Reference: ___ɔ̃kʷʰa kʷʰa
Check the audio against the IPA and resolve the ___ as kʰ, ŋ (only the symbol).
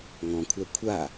ŋ